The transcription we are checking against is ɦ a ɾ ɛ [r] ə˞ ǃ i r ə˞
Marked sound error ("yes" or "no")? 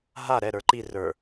yes